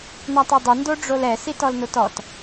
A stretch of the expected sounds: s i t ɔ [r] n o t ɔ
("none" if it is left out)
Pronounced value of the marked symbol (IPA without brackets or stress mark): l